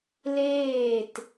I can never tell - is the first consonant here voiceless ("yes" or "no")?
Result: no